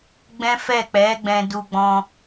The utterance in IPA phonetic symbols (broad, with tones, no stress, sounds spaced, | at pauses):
ɡ͡b ɛ̃˦ f ɛ˦˨ k͡p ɛ˨˦ ɡ͡b ɛ̃˧ d u˧ ɡ͡b ɔ̃˧